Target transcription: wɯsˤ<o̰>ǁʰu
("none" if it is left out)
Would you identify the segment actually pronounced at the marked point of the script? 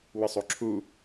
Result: o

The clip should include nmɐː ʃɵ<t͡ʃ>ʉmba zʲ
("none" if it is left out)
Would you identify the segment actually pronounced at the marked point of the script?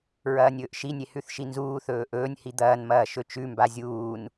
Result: t͡ʃ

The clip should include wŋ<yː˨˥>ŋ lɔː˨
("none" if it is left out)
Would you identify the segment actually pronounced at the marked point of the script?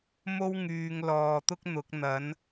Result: yː˨˧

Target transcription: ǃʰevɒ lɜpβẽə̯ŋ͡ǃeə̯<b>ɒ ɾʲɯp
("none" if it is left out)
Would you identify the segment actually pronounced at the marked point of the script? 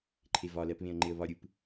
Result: β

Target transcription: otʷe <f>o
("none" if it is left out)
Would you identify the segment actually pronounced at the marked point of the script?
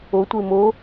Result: m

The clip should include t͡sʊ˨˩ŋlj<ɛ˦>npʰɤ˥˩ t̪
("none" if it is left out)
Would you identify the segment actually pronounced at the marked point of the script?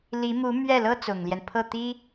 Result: ɛ˦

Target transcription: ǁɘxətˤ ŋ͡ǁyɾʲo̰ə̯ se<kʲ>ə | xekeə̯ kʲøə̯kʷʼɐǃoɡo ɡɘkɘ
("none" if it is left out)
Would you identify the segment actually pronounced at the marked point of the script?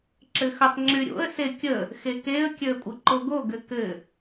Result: kʲ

